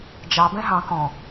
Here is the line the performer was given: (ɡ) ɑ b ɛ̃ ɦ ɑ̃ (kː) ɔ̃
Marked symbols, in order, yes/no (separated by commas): no, no